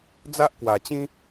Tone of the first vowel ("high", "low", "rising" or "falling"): high